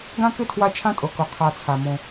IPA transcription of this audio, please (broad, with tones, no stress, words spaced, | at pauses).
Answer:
ɡã˥kɪ˥tʰwa˦ t͡ʃʰã˦tʼɤ˩kɤ˩ qʰa˨t͡sʰa˩ mõ˩